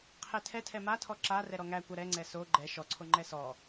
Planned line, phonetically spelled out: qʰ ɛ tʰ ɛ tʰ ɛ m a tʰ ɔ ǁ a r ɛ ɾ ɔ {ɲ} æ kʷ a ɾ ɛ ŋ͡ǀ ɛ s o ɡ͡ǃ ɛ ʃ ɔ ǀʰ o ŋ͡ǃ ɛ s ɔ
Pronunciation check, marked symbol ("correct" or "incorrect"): incorrect